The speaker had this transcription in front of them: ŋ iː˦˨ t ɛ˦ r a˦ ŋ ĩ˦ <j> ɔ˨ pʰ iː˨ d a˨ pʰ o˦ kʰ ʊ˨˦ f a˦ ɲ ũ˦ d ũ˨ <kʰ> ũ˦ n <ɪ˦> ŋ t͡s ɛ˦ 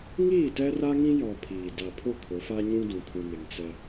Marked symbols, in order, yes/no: yes, yes, no

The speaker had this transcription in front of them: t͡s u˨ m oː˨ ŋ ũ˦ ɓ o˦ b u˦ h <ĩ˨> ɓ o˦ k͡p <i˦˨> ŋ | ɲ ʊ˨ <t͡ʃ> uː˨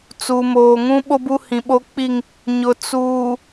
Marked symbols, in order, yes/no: yes, yes, no

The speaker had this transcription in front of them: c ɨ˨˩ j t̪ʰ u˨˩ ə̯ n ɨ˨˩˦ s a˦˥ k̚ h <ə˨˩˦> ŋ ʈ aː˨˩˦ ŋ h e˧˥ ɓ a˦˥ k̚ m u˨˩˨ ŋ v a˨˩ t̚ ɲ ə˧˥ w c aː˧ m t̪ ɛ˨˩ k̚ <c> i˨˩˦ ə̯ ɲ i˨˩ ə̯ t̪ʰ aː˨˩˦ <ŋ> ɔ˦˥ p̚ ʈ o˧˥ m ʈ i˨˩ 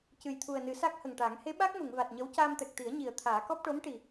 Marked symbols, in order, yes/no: no, no, no

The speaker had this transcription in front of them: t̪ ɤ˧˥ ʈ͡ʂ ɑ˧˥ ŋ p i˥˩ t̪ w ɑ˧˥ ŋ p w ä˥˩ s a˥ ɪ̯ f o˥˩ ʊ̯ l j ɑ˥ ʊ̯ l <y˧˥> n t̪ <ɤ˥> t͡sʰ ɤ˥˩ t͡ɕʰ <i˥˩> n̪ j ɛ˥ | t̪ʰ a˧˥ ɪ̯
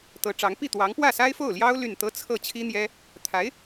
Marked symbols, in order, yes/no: no, yes, no

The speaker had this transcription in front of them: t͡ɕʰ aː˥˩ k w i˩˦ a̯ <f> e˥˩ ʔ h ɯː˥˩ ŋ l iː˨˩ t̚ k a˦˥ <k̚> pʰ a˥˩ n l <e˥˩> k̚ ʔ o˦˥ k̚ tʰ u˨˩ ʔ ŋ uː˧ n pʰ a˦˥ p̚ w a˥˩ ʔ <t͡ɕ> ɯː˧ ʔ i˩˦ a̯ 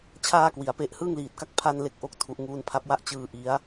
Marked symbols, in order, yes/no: no, yes, yes, yes

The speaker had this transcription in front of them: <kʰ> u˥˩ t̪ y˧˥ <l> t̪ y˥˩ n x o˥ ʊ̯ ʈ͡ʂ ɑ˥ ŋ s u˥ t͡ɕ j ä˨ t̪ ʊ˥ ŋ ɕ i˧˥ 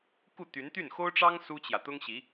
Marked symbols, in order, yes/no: no, no

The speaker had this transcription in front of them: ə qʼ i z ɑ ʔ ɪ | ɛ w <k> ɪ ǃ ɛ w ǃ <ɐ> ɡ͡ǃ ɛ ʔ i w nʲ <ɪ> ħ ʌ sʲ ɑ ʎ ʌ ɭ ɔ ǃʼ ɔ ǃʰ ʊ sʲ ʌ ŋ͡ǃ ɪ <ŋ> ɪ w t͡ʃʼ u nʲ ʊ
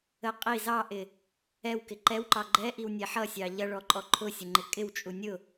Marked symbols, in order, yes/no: yes, no, no, no

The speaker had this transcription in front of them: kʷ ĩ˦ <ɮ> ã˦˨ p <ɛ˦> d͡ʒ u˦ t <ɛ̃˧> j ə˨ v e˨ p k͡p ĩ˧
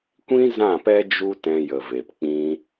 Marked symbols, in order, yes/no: no, yes, yes

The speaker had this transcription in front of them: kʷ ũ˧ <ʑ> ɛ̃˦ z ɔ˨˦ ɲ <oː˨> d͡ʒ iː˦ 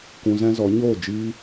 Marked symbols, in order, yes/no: no, no

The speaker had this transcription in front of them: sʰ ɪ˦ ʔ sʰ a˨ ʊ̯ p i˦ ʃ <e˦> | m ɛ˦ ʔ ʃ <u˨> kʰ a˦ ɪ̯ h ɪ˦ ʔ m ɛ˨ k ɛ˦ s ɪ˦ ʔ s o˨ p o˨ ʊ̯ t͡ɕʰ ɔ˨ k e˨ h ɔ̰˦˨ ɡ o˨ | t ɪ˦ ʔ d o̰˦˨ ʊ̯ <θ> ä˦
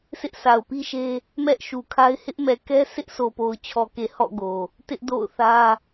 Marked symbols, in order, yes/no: yes, yes, yes

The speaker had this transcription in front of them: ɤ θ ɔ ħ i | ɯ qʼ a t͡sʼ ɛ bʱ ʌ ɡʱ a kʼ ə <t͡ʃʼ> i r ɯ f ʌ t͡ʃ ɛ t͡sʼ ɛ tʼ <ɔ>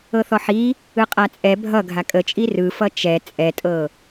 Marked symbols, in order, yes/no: yes, no

